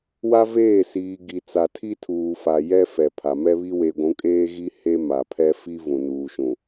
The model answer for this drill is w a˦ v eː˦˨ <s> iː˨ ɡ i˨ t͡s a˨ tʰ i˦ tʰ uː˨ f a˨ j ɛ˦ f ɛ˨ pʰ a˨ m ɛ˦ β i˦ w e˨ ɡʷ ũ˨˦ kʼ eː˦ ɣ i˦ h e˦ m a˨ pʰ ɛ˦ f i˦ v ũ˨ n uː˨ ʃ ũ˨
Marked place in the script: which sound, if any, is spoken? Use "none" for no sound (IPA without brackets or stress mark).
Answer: s